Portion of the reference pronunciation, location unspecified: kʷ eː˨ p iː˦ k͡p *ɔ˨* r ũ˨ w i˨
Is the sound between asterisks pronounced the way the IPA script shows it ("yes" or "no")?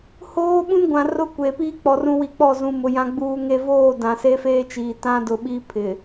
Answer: yes